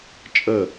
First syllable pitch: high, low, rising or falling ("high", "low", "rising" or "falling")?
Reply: falling